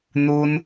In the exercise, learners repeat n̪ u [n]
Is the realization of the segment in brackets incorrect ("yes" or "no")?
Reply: no